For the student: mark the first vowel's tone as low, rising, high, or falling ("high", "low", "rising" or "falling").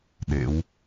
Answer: rising